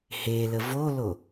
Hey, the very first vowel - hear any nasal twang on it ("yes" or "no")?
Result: no